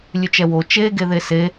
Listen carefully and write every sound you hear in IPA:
lʲ ʉ t͡ʃ ɛ w o t͡ʃ e ɡ e ð e s e

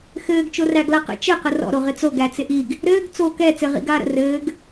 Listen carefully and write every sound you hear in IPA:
x ɘː ɡ t͡ʃ o r æ ɡ l a q ə̰ t͡ʃ ɘ q ə r ɔ̰ ɾ o ʁ ɪ t͡s o ɡ æ t͡s ɪ ʔ i ɡ | ɾ ɘː ɡ t͡s o k ɛ t͡s ɘ ʁ ḭ ɡ aː ɾ ə̰ r ɘː ɡ

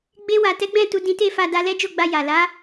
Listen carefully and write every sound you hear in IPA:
ɡ͡b e˧ w a˨ t ɛ˨˦ ɡ͡b ɛ̃˦˨ t u˧ d ĩ˧ t e˦ f a˧ d a˧ l ɛ˦ d͡ʒ o˦˨ ɡ͡b a˧ j a˨ l a˨˦

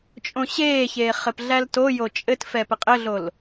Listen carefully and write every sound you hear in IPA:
t͡ʃʼ õ ɕ eː ç eː χ ɘ p ɮ æ l t o j o t͡ʃʼ ɘ t f ɛ p ɘ qʼ ɘ ɮ o l

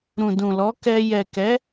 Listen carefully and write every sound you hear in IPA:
ɾ ũ˨ d ũ˨ l ɔ˨˦ k ɛ˧ j ɛ˨ k ɛ˨˦

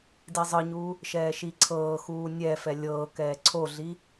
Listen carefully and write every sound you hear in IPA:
d i zˤ ɯ ɲ uː | ʃ ɛː ʃ i ǀʰ ɤː x uː nʲ ɛ f ɛ lʲ ɤː k ɛː ǀʰ o ɮ i

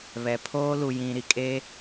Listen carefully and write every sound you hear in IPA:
β ɛ˨ pʰ oː˦ l u˨ j ĩ˨ ɾ i˨ kʼ e˦

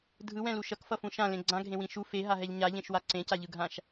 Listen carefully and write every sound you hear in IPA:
dʱ ɯ w ɛ̃ l u ʃ ʌ k f ʌ f ũ ʃ ã l ẽ ɡ͡ǀ ã ɡʱ ẽ w ĩ ʃ u f e ɦ a ɦ ɛ ʎ ɲ a ʎ ẽ ʃ w a ǀ ẽ c a ʎ ɯ ɡʱ ã ʃ

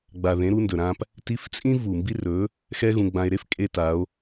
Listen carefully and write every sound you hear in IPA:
ɡ͡b a˩ ð ẽ˩˧ ɾ u˧ n d ɵ˩ ɾ ã˧ p | t i˧˥ f t͡sʼ ĩ˥ v u˩ m b i˧ r ɵ˩˧ | x ɛ˥ ɣ ũ˧ ɡ͡b ã˧ e̯ ɾ e˥ f kʼ e˧ t a˩˧ o̯

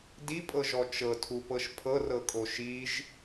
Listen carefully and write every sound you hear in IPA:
d i pʼ ɤ ʒ ɔ t͡ʃ ɤ tʰ u p ɤ ʃ pʰ ɤ r ɤ kʼ o ʃ i ʒ

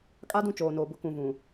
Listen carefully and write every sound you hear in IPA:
kʼ a˦ d ũ˦˨ t͡ʃ oː˨ n oː˨ b ʊ˦ k ũ˨ v ũ˨

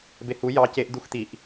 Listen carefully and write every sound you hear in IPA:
b e h u j ɑ c e ʔ d̪ u x t̪ i ʔ

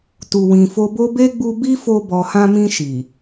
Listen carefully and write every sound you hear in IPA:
t u˨ w ĩ˨ f o˧ b o˦ b e˦ ɡ͡b u˧ b i˦ f o˧ b ɔ˨ h ã˧ m ĩ˧ ʃ i˨

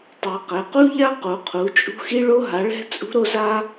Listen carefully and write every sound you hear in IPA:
tˤ ɛ˨˥ q ɛ˨˥ q u˥ ʎ a˥ q u˨˥ qʰ u˨˥ t͡ʃʼ ṳ˥ x i˥ ɭ o˥ ɦ a˨˥ ɭ ɛ̤˥ t͡sʼ ṳ˥ ɾ o˥ z a˥

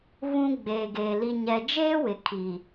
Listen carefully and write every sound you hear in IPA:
β ũ˦ ɡ͡b eː˨ ɡ eː˨ l i˨ ɲ ɛ˨ d͡ʒ eː˦ w ɪ˨ kʰ i˨

